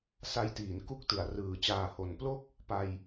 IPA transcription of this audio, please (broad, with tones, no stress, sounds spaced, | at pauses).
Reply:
s a˧ j t iː˩˦ n k u˦˥ k̚ t ɯ˩˦ a̯ r ɯː˨˩ t͡ɕ aː˨˩ h o˩˦ n p l o˥˩ k̚ | p a˧ j